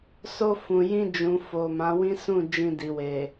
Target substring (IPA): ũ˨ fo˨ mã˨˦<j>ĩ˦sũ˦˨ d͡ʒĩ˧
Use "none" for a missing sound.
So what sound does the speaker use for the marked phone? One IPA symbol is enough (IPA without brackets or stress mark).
w